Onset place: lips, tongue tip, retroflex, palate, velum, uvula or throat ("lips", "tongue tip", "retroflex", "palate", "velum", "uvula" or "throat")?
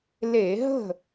tongue tip